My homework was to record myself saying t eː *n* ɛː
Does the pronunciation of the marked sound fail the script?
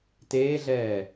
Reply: yes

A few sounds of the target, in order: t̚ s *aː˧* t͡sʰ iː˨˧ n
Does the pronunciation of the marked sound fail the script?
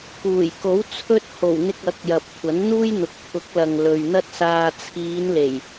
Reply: no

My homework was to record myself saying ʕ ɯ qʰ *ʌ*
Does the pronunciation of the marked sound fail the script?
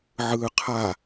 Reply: yes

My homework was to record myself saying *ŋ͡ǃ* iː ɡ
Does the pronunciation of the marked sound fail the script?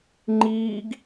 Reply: no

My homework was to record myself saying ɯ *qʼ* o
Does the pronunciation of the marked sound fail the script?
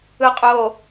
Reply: no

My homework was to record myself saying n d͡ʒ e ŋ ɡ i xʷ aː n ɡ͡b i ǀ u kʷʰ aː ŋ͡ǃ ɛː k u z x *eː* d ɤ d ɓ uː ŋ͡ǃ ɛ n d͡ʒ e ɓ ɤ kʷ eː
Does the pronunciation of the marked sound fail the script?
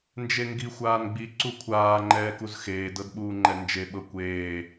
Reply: no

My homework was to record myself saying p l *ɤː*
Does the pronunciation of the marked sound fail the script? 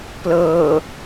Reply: no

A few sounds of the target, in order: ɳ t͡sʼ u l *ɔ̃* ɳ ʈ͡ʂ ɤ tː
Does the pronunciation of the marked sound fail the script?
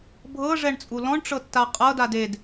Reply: no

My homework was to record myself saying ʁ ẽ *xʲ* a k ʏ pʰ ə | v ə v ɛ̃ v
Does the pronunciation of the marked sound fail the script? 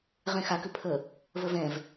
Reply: yes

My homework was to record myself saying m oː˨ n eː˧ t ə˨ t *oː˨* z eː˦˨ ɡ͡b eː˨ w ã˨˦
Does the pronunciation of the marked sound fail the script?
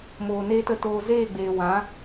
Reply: yes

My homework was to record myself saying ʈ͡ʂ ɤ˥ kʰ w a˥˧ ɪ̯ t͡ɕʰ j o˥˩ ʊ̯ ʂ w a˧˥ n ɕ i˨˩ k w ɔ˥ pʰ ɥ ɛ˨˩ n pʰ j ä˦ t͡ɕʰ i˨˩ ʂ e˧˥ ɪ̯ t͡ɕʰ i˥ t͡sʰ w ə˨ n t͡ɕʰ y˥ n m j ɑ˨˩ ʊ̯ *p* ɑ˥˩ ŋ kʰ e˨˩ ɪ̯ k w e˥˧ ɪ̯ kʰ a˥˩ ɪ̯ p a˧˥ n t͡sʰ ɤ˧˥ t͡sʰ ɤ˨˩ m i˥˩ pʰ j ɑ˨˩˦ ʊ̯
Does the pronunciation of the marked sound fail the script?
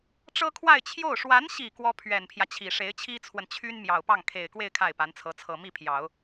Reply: no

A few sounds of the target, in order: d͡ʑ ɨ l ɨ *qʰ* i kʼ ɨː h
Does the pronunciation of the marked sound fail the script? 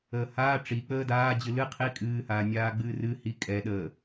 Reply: no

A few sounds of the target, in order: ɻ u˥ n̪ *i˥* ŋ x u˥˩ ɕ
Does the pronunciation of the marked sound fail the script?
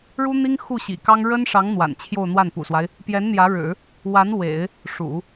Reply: no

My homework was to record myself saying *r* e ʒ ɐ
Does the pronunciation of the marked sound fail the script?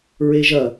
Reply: yes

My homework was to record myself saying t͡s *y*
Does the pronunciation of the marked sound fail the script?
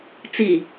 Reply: yes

